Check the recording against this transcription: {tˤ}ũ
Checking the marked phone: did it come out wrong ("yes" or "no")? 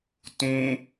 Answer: yes